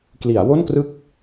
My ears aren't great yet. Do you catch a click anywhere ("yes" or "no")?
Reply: no